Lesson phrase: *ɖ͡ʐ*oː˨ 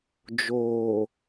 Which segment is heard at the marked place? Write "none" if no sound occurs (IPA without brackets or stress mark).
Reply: d͡ʒ